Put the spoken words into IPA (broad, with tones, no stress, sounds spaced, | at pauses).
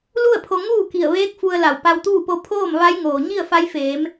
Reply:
l u˥˨ ə̯ pʰ o˧ ŋ uː˥˨ k i˧˩ ə̯ ʋ eː˧˥ k̚ f u˧ ə̯ l a˧˩ w p a˧ w t̪ uː˥˨ p o˧˥ pʰ oː˥˨ m ʋ a˧˥ j ŋ oː˩ ɲ i˥˨ ə̯ f a˧˥ j f eː˩˧ m